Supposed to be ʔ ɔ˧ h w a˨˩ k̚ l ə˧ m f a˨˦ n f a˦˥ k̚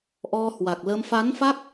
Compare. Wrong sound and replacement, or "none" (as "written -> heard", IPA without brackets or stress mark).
none